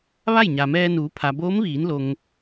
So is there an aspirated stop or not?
yes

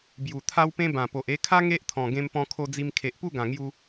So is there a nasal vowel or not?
yes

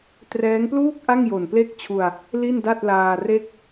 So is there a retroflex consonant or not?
no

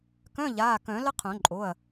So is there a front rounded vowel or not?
yes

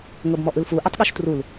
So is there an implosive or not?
yes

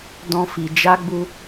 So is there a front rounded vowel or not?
no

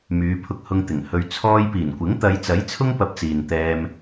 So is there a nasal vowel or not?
no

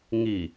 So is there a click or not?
no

